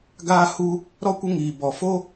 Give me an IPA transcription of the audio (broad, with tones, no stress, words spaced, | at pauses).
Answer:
ɡaː˦hu˦ | ɾɔ˦kʷə˦ŋiː˧bɔ˧ fo˦